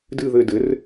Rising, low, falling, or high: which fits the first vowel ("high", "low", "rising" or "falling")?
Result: falling